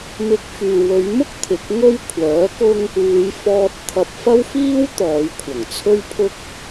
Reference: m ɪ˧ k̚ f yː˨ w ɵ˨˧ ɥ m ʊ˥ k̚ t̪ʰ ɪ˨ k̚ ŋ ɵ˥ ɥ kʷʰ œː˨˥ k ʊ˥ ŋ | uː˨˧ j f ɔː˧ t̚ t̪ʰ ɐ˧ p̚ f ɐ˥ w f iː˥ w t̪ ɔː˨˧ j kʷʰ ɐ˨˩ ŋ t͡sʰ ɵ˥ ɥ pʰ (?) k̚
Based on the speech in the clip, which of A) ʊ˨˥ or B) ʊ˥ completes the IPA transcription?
B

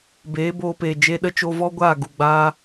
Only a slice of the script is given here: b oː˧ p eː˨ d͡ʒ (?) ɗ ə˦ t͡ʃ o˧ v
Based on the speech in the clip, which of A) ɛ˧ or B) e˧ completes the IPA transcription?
B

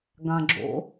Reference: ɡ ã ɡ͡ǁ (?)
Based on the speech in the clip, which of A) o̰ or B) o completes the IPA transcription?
A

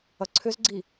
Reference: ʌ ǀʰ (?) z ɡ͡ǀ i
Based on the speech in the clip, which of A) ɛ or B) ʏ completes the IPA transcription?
B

